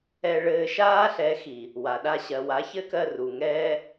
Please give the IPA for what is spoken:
ɛ˧ ɭ ɘː˧ ʃ aː˦ ɬ ɛ˨˦ x i˨ | w a˨ ɗ a˦ ɕ ɜ˨ w a˨˦ ç ɘ˦ k ɜ˧ r u˨ ŋ ɛː˦

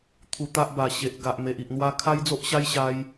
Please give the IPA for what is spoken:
t̪ʰ u˧ t̪ a˦ ʔ b a˨˩ ɕ e˨ ʔ ɡ a˨ ʔ m e˨ ʔ i˨ ʔ n̪ w a˦ kʰ a˦ j d͡z o˦ ʔ ɕ a˦ j ɕ a˧ j

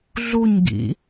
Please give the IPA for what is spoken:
ɮ u ɲ ɡ ḭ

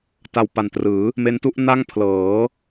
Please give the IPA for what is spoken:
t a˧ w p a˨˩ n t r ɯː˩˦ | m e˦˥ n t u˦˥ ʔ n a˥˩ ŋ pʰ l ɤː˩˦

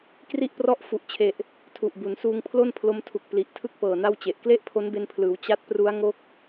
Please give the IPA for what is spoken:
k r i˥˩ ʔ p r ɔ˥˩ ʔ f u˨˩ ʔ t͡ɕʰ e˨˩ ʔ | tʰ u˨˩ ʔ b u˩˦ n s uː˧ ŋ pʰ l o˥˩ n pʰ l o˧ m tʰ u˨˩ k̚ p l i˨˩ ʔ tʰ ɯ˥˩ k̚ p ɤː˨˩ n a˥˩ w t͡ɕ e˨˩ ʔ k l e˥˩ ʔ pʰ o˦˥ n b e˧ n pʰ l ɯː˩˦ w t͡ɕ a˦˥ t̚ p r u˦˥ a̯ ŋ o˦˥ k̚

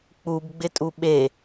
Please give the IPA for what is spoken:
k͡p u b ɡ͡b ɪ tʼ u ɓ e

